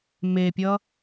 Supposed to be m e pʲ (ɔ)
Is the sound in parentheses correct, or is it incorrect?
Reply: incorrect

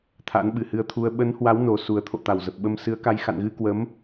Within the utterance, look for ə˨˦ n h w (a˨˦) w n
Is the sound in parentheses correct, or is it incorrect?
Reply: correct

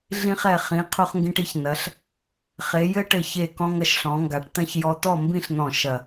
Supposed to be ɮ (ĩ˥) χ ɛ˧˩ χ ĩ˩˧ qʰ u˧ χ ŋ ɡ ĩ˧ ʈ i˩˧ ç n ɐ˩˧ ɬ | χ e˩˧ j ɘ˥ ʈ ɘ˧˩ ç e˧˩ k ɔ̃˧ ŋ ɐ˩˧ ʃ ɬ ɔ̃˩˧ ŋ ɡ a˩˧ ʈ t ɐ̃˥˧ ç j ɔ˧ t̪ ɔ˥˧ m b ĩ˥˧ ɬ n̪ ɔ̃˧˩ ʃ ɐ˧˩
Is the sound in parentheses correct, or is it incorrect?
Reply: incorrect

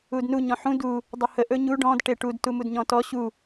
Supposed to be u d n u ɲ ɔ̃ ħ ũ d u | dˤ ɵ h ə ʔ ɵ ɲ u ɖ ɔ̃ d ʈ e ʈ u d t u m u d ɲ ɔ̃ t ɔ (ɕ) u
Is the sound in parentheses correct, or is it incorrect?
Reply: correct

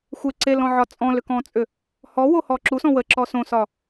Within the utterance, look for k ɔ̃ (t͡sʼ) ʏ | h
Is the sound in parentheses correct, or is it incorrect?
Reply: correct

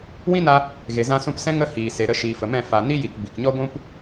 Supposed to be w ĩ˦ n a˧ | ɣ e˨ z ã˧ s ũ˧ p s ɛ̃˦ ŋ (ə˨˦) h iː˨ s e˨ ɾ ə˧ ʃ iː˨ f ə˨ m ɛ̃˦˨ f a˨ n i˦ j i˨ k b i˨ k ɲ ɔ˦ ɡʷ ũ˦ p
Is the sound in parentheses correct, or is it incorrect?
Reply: incorrect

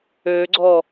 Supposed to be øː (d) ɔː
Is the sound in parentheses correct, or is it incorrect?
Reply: incorrect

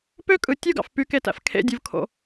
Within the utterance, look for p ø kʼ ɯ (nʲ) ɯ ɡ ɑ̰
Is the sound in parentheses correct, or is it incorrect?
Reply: incorrect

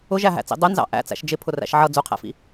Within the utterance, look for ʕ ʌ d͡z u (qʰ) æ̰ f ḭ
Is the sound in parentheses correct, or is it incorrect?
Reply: correct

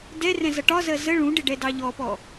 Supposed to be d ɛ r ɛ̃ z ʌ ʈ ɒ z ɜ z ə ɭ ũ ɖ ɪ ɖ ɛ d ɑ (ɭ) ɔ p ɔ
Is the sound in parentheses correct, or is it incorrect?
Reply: incorrect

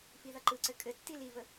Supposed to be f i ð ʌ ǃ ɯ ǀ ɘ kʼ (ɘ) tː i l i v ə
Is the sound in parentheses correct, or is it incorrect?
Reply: correct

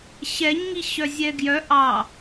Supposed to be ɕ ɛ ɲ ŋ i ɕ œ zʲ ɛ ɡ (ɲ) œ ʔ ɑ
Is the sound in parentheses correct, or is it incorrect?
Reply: incorrect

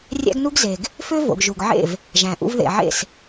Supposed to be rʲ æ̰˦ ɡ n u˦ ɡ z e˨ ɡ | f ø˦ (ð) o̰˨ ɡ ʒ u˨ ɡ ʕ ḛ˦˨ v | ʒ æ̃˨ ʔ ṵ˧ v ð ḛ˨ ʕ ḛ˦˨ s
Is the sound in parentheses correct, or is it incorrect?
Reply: incorrect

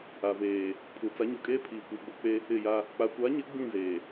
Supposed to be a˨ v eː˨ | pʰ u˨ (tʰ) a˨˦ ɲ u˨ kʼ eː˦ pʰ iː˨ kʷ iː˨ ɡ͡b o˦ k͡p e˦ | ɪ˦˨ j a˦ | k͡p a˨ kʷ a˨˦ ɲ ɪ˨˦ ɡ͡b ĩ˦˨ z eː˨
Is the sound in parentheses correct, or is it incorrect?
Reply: incorrect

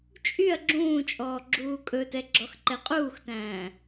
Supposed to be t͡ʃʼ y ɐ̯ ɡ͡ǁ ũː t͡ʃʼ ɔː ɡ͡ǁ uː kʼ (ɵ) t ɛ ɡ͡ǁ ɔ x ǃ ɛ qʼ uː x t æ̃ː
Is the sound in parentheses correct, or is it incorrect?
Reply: correct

